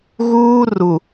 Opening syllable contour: high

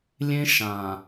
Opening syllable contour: high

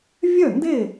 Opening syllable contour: falling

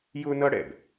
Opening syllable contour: high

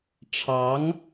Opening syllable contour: rising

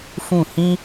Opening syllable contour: falling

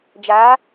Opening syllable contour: rising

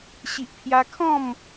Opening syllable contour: low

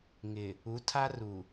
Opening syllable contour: low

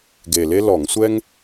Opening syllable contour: low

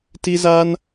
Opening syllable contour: high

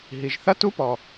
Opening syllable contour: low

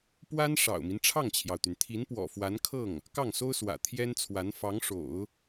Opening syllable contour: high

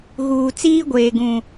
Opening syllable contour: low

